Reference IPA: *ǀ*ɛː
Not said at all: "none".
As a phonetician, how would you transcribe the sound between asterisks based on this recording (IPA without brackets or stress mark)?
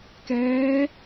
k